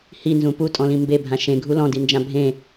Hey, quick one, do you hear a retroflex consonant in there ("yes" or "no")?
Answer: no